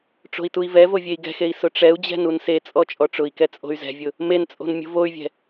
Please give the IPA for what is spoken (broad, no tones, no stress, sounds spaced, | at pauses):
ʈ͡ʂ o̤ i̯ t u i̯ v ɛ v o vʲ e i̯ ɡ ɛ̤ x e i̯ s ʊ ʈ͡ʂ ɛ u̯ d͡ʑ ɛ̤ n u n s e t͡sʼ ɔ t͡ʃʼ ɔ ʈ͡ʂ ʊ i̯ k ɛ t͡sʼ o̤ y̯ z ɛ̤ vʲ ʊ | m e n t͡sʼ o̤ n mʲ o̤ v o y̯ vʲ ɛ̤